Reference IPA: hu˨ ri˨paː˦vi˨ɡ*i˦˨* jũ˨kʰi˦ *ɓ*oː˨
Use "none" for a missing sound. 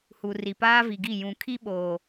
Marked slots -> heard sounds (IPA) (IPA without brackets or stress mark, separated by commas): i˦˨, ɓ